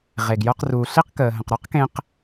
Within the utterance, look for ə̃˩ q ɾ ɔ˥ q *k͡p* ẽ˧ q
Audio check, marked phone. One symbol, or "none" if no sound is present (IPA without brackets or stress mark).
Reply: k